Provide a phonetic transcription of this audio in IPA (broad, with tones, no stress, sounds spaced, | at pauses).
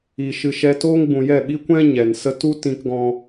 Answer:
iː˨ ʃ ɨ˨ ʃ ɛ˧ t oː˦ ŋ ɡ͡b ũ˨ j ɛ˦˨ ɓ i˦ kʷ ɛ̃˦ ɲ ɛ˨ n s ə˦ t u˦ t ĩ˧ k ɡ ɔ̃˧